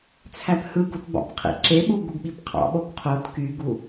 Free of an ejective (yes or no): yes